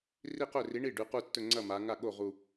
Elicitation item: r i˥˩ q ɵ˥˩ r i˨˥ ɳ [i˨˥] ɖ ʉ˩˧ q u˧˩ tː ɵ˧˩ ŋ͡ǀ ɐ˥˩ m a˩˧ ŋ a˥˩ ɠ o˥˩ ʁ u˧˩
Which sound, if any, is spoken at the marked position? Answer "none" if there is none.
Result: i˥˩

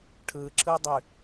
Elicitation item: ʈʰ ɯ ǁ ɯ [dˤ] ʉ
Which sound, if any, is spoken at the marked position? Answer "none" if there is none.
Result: dˤ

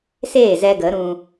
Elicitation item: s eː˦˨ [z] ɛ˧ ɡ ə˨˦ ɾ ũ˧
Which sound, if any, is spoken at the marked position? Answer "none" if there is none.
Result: z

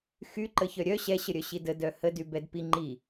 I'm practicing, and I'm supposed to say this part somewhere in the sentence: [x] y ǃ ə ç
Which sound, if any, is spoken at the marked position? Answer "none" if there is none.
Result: x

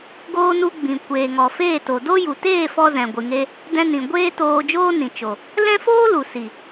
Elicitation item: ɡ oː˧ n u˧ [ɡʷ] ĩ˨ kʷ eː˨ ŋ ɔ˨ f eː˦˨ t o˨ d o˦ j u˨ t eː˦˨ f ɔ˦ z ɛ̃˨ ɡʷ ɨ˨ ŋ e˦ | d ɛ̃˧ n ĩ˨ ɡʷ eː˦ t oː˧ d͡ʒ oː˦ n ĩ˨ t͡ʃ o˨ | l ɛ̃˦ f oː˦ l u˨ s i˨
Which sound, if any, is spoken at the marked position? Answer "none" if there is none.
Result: ɡ͡b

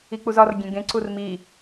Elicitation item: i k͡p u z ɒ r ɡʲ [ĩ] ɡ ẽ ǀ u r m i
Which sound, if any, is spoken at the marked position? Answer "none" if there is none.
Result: ẽ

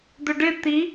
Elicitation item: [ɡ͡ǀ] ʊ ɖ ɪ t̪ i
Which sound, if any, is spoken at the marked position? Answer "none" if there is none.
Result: d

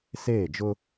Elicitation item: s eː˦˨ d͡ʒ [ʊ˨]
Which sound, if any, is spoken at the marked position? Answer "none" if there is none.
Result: ʊ˦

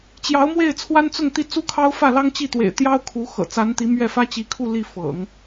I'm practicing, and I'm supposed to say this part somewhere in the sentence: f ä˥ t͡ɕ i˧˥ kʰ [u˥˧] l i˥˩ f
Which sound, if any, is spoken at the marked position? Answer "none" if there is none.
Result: u˥˧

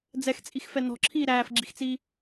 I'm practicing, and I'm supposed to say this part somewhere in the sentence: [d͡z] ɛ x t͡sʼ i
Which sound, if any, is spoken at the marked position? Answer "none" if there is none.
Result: d͡z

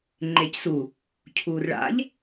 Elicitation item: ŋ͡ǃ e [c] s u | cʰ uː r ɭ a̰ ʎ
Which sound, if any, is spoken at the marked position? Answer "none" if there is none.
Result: c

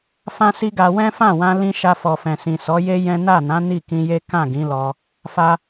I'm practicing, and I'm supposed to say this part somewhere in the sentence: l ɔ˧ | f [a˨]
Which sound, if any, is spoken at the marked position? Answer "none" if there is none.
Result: a˧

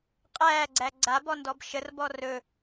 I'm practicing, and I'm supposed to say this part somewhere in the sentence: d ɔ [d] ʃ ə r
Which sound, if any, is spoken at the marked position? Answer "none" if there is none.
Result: b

